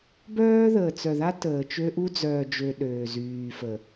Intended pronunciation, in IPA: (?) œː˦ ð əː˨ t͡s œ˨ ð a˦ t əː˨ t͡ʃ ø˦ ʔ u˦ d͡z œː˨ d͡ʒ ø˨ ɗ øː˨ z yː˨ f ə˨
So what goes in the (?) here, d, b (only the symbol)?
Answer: b